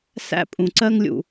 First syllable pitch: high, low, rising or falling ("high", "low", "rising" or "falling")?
high